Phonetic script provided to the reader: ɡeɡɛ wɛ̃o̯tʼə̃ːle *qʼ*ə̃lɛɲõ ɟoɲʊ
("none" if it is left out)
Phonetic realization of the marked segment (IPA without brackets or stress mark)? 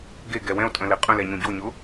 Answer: qʼ